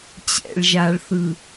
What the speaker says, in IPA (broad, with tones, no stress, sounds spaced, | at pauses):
t͡ɕ ɛ̰˨ ɭ ʒ a˨ ɭ θ ɯ˨